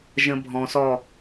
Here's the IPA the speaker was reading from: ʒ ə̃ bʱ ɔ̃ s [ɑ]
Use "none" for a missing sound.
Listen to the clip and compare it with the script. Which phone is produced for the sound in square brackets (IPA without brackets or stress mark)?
ɔ